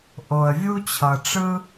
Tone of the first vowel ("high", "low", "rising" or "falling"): low